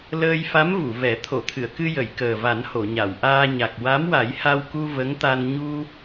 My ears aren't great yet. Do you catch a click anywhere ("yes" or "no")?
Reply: no